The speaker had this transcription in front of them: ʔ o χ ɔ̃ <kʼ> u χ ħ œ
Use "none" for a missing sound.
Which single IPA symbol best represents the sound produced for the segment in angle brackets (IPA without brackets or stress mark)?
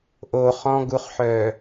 ɡ